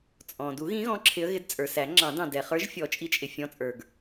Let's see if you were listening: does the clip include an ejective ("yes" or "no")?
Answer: yes